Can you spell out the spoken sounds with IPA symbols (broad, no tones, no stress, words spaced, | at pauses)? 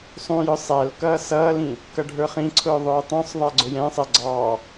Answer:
sˤũjʊ sˤæl kʌːsʌːlĩ | kʌɖʱə˞χĩǀʰʊː ðˤʊːtˤũsˤðˤæ ɡ͡ǀʊjɛ̃sˤɛ ɡ͡ǀɑ